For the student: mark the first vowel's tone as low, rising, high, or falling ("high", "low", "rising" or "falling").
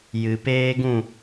low